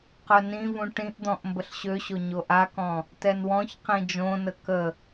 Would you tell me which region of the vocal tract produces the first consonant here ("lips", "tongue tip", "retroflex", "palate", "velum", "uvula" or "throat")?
uvula